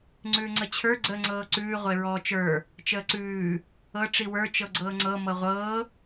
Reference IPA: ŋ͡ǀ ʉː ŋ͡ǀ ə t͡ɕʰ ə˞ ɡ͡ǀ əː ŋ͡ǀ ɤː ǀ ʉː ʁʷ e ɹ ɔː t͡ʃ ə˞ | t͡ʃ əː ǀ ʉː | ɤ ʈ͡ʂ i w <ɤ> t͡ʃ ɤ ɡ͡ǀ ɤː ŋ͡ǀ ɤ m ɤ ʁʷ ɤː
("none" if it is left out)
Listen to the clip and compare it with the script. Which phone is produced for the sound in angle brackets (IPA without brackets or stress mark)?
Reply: ə˞